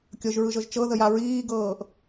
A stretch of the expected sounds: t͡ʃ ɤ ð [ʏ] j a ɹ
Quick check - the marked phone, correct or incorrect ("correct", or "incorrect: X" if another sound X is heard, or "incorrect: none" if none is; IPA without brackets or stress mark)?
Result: incorrect: ə